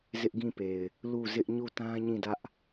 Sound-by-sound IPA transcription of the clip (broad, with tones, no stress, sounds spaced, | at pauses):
z ɪ˦ ʔ ɡ ĩ˦˨ p e˨ ɪ̯ | l u˦˨ z ɪ˦ ʔ ɲ u˦˨ t ã˦ ɲ ĩ˦˨ d ä˦ ʔ